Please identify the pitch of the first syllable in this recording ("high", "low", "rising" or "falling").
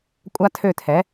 high